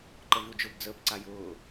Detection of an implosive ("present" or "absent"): absent